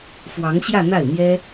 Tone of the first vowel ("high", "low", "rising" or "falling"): rising